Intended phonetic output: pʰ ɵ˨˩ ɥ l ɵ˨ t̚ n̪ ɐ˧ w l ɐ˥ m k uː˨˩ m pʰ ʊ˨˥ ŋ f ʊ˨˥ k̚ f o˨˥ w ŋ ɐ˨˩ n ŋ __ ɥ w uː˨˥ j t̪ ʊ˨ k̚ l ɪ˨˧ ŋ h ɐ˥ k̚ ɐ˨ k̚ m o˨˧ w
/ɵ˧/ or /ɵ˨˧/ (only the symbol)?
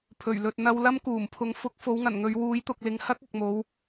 ɵ˨˧